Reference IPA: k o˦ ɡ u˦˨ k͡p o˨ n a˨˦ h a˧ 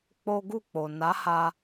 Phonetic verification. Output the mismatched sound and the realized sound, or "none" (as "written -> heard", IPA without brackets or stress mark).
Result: k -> k͡p